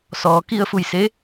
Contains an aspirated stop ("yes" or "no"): no